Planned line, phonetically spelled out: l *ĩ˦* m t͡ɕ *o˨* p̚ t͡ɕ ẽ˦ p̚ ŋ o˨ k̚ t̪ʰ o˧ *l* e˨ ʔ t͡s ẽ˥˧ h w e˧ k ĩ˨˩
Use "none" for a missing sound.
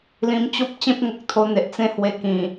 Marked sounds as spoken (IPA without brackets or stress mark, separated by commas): ĩ˧, o˦, n̪